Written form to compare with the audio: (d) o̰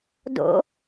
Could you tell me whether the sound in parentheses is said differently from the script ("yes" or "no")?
no